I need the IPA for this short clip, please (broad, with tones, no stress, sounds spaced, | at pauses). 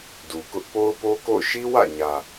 d u˨ k ʊ˦ ʔ p o˦ ʊ̯ p o˦ k o̰˦˨ ʊ̯ ʃ i˦ w ä̰˦˨ ɲ ä˨